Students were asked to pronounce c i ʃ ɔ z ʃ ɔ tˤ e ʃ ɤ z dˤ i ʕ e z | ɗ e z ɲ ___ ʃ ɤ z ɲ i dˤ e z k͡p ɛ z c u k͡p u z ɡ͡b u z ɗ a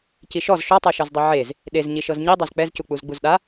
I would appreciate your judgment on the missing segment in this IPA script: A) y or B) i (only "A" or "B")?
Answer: B